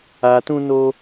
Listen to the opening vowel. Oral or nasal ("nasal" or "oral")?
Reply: oral